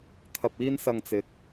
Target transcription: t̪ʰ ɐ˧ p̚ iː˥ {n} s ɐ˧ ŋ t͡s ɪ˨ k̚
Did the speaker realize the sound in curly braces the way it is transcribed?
yes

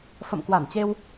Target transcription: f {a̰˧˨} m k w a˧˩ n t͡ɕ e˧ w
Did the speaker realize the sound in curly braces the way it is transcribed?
no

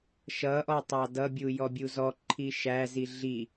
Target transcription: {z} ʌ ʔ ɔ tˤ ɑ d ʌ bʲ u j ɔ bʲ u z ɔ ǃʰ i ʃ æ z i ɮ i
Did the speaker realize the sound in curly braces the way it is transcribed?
no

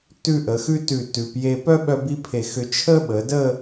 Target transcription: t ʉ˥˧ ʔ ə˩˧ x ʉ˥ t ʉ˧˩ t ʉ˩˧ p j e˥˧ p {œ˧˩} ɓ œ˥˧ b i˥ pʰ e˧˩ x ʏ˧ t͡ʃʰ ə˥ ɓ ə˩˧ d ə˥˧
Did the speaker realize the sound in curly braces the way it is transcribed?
no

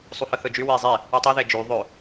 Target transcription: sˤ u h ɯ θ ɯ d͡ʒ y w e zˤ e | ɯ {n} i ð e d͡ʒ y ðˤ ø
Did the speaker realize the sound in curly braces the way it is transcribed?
no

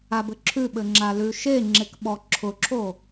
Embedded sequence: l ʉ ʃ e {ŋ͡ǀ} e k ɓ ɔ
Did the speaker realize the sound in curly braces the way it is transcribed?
no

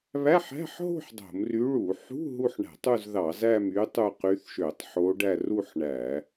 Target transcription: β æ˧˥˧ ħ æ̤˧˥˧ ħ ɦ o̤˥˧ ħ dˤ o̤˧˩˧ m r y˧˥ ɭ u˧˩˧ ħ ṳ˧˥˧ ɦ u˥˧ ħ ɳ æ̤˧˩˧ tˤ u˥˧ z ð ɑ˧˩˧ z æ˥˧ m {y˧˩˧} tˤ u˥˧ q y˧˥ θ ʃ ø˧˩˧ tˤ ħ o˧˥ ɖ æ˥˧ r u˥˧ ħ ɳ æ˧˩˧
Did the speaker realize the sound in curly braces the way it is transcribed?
no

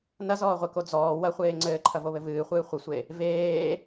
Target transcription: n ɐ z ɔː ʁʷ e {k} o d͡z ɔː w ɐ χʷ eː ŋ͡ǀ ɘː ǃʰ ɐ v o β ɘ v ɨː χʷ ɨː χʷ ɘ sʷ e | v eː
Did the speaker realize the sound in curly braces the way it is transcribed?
yes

